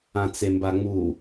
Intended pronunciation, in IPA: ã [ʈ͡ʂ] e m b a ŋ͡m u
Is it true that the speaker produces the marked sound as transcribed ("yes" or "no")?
no